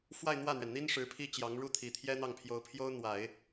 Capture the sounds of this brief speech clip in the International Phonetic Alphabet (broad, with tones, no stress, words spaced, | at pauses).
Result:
fwa˥˧ɪ̯n̪wä˥˩n̪ɥɛ˩nn̪i˥n ʂɻ̩˧˥pʰi˥t͡ɕjɑ˧˥ŋɻu˥ t̪ʰi˨˩t̪ʰjɛ˥n̪ɑ˥˩ŋpʰjo˧˥ʊ̯ pʰjo˥ʊ̯ n̪wa˨˩˦ɪ̯